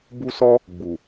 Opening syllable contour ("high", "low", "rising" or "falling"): high